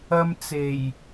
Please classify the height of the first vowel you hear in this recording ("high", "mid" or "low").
low